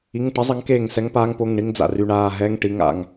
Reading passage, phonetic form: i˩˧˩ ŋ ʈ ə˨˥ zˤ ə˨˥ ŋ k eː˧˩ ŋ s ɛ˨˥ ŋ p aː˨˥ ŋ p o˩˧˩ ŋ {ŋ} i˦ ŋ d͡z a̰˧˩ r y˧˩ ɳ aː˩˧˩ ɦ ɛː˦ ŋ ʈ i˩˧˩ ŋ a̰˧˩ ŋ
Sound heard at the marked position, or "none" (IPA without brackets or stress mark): ɳ